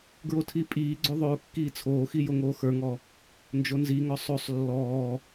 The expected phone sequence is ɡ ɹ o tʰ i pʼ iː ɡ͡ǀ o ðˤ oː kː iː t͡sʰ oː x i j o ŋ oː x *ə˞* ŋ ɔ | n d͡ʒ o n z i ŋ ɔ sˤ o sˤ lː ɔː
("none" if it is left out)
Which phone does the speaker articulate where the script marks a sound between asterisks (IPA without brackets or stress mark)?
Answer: ə˞